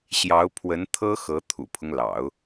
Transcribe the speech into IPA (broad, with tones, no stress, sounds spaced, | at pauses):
ɕ j ɑ˧˥ ʊ̯ pʰ w ə˧˥ n t̪ʰ ɤ˥ x ɤ˧˥ t̪ʰ ṵ˨˩ pʰ ʊ˦ ŋ l ɑ̰˨˩˦ ʊ̯